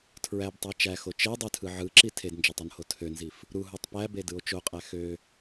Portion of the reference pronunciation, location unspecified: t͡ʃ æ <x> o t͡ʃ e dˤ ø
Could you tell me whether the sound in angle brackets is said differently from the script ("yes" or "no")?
no